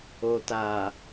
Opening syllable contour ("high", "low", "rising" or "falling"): low